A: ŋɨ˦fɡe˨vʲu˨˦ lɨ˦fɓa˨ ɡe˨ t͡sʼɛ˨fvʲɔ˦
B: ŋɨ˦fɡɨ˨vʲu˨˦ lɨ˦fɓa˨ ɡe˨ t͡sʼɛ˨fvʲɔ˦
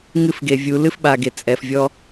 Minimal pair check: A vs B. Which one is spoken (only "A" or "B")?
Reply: A